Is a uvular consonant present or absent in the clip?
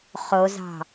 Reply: present